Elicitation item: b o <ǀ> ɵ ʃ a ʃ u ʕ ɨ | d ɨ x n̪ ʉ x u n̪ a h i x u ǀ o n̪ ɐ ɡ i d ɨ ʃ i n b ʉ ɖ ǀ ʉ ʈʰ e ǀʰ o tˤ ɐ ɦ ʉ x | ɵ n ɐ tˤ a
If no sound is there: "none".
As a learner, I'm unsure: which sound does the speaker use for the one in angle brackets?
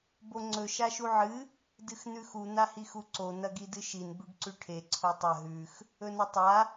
ŋ͡ǀ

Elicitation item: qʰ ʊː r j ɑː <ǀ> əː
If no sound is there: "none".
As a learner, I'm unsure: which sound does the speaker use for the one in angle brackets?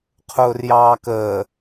k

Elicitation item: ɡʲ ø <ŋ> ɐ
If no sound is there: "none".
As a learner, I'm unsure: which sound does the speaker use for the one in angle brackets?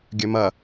m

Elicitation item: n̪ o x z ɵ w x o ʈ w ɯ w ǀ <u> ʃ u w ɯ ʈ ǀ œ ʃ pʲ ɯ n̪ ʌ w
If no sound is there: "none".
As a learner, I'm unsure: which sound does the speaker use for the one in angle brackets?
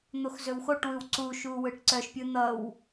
u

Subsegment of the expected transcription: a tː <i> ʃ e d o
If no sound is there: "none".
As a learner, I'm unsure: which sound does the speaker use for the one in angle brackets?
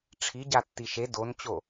i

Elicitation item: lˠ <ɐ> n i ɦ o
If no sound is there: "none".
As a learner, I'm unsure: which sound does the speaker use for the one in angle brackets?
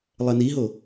ɐ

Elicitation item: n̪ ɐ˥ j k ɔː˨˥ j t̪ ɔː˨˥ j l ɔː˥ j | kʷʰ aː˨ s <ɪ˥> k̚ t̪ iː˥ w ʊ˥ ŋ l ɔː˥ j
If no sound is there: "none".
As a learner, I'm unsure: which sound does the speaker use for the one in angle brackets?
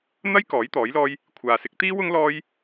ɪ˨˥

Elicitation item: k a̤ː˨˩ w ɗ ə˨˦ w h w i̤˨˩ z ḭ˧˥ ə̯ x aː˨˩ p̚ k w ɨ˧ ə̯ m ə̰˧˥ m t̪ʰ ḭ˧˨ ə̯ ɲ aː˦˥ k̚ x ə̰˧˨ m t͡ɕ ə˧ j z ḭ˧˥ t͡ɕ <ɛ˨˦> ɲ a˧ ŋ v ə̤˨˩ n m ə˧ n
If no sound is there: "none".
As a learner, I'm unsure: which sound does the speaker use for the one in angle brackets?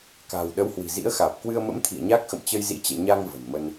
ɛ̰˧˨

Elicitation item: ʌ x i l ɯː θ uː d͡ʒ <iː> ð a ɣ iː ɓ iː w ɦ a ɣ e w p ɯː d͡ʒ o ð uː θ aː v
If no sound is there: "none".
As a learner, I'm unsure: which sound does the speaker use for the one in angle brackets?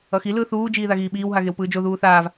iː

